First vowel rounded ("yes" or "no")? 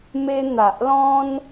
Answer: no